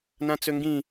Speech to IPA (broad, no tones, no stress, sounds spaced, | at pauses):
n ã t͡s ø ŋ ɡ ĩ